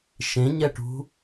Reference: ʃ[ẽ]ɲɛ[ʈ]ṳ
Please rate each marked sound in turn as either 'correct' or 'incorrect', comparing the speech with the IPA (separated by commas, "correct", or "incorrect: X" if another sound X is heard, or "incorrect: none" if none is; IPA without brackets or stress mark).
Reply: correct, correct